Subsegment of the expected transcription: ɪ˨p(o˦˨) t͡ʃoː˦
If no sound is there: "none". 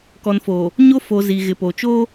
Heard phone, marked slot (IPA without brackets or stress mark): o˨